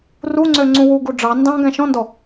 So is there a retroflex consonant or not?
yes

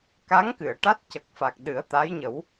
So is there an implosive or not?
yes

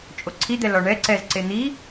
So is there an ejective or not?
yes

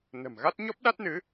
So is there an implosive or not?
yes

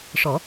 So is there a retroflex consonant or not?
yes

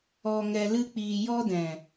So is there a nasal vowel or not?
yes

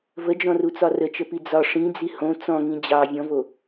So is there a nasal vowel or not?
yes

